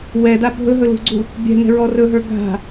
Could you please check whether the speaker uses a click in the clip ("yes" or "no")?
yes